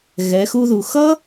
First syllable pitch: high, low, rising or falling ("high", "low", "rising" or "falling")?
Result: rising